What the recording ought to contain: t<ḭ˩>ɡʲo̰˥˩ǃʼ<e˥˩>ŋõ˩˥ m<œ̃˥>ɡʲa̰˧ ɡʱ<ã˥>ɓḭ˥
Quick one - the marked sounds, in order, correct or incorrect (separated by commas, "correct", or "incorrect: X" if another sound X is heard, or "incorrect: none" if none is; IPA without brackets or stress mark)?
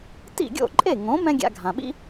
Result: incorrect: ḭ˥˩, correct, incorrect: ɛ̃˥, incorrect: ã˩